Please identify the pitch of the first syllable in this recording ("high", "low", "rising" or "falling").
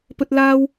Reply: high